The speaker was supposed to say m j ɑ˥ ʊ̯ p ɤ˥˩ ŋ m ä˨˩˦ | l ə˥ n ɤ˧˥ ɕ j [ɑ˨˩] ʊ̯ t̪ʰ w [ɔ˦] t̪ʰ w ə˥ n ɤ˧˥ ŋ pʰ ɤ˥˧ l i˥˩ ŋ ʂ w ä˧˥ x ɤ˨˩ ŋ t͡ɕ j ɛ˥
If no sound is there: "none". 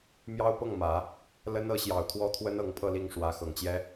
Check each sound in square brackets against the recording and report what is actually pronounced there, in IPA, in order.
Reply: ɑ˨˩, ɔ˥

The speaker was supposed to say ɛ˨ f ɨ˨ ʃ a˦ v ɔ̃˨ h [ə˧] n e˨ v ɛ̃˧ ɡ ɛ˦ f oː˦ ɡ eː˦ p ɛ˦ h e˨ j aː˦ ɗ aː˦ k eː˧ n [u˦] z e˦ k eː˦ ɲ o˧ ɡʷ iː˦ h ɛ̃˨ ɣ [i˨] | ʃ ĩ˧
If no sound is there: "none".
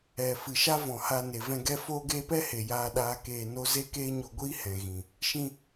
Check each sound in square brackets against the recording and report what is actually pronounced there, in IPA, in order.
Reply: a˧, o˦, ĩ˨

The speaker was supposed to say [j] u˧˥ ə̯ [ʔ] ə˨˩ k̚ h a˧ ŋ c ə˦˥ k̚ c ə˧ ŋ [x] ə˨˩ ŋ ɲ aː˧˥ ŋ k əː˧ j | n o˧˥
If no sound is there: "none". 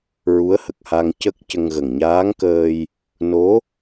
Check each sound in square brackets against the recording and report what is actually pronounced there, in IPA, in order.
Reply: ɹ, h, ɣ

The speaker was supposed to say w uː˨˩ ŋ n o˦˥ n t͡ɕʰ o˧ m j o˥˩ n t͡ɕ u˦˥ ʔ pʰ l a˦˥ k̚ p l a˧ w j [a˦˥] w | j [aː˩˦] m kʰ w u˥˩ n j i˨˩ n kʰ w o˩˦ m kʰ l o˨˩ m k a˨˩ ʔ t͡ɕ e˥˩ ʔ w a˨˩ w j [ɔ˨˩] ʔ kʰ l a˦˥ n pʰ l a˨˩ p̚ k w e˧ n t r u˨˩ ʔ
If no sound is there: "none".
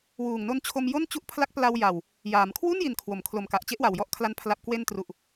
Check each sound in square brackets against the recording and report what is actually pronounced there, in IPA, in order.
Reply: a˨˩, aː˩˦, ɔ˦˥

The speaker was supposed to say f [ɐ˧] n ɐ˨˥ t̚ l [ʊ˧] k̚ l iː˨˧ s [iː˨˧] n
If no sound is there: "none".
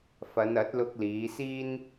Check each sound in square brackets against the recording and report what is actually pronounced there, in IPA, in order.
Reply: ɐ˨˧, ʊ˧, iː˥

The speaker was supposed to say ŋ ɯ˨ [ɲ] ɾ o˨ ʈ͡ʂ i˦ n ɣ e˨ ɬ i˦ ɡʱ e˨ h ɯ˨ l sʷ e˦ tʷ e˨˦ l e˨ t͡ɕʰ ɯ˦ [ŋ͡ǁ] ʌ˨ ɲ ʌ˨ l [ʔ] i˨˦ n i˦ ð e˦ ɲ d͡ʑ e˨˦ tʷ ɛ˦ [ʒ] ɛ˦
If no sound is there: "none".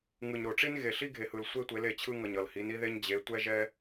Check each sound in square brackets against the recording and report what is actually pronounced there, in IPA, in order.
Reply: ɲ, ŋ, h, ʒ

